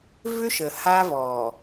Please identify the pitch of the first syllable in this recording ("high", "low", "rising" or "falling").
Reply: high